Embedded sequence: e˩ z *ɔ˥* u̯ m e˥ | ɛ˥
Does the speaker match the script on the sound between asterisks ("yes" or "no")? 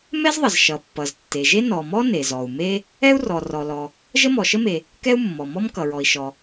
no